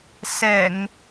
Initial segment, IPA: s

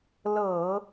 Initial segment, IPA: l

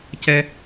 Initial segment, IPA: c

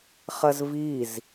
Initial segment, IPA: χ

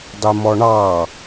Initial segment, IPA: dˤ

